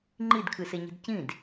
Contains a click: yes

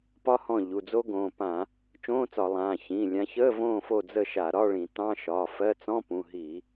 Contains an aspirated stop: no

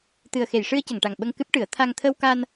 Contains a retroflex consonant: yes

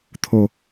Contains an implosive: no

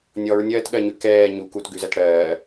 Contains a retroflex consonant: yes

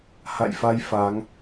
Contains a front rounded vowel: no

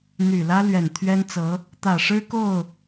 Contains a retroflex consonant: yes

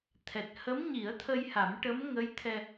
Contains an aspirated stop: yes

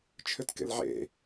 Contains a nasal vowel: no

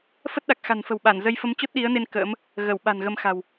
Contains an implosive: yes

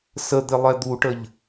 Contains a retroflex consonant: yes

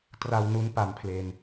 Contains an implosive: no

